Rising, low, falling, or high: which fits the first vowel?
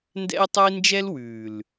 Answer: high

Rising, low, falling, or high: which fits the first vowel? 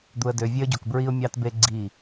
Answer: low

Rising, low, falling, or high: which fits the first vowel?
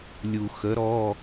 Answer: low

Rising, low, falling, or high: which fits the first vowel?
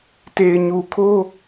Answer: low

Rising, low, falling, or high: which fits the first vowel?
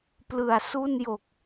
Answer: low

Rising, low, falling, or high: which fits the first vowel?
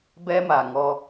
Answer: high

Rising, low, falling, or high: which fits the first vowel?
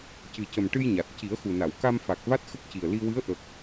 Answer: low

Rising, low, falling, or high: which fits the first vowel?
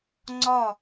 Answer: falling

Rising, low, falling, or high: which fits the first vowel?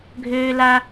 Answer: high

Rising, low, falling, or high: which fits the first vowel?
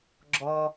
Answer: low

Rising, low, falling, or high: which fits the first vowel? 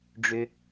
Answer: low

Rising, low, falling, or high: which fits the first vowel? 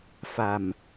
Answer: low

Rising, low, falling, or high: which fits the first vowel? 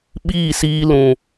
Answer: falling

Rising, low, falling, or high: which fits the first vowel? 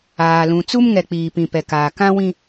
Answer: low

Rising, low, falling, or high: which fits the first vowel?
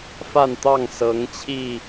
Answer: falling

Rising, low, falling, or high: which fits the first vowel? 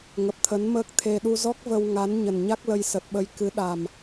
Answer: low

